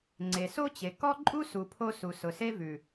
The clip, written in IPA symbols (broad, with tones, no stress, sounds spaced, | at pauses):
ŋ͡ǀ e˨ s o˦ t͡ɕ e˨ k ɔ˦ ǃʼ u˦ s u˨ pʰ o˧ s u˨ s ʊ˨ s e˦ v ʉ˨